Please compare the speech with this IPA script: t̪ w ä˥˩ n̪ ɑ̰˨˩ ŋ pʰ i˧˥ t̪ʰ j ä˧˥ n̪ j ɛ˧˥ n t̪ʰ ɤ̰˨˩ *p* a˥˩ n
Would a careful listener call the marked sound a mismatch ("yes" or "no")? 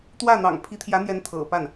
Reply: no